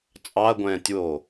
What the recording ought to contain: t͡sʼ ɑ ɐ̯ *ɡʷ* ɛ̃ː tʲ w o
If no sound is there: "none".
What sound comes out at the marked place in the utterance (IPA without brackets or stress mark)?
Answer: ɡʷ